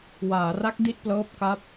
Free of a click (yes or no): yes